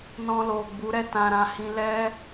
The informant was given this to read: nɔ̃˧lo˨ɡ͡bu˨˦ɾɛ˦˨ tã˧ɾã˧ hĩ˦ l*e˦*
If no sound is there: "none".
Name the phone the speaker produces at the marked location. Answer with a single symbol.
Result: ɛ˦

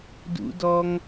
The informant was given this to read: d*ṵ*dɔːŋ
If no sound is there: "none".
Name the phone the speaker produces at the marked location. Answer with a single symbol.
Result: ṵ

